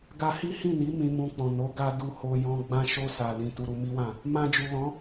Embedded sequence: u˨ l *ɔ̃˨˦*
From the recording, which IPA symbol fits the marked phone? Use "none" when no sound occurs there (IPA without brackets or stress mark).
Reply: ɔ̃˨˦